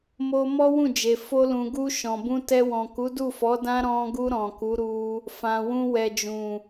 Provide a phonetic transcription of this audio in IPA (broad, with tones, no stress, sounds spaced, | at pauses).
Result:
m o˧ m ɔ˦ w ũ˦˨ d͡ʒ e˨ f o˧ l ũ˨ ɡ u˧ ʃ ɔ̃˨ b ũ˧ t ɛ˧ w ɔ̃˨ k u˨˦ d u˦˨ f ɔ˨˦ d ã˦ ɾ ɔ̃˧ ɡ u˧ ɾ ɔ̃˨ k u˨˦ ɾ u˧ | f ã˨ w ũ˧ w ɛ˨ d͡ʒ ũ˨